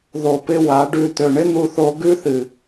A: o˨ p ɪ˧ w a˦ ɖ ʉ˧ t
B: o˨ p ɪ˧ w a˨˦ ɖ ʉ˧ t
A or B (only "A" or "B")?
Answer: B